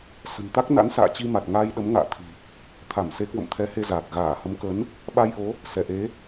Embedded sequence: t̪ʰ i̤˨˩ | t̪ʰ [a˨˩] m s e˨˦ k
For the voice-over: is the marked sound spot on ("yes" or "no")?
no